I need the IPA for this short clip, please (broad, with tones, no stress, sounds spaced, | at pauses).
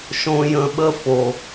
ʃ õ˧ j ə̃˧ ɓ ə˦ f o˨